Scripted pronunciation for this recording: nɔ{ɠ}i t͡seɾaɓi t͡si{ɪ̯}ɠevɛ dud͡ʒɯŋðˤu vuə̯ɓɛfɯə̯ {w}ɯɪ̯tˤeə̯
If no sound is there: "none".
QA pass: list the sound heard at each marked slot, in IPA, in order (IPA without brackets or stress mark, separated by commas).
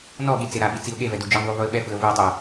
ɠ, ʊ̯, v